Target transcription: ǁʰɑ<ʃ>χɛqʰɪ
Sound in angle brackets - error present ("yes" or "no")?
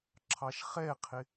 no